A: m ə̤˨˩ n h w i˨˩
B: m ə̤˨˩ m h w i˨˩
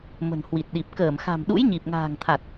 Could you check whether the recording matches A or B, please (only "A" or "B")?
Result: A